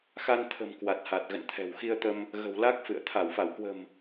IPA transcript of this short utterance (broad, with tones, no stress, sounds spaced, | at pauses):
x a˧ n t̪ʰ ə̤˨˩ m k w a˨˩ t̚ h a˨˩ t̚ ɣ ə̰˧˨ n t̪ʰ ɛ̤˨˩ w x i˧ ə̯ t̪ ə˧ m | ɣ ə̤˨˩ w l a˦˥ k̚ f ɨ̰˧˨ ə̯ t̪ʰ a˧˩ w f a˧˩ w k w ə̤˨˩ m